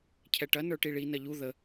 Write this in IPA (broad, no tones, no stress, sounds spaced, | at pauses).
cʰ ɛ ʈ ɐ n ə˞ ʈ i ɭ i n ɐ ʎ u ð ə